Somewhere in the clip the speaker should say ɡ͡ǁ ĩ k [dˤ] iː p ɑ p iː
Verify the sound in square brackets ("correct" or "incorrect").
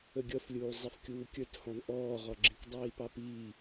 correct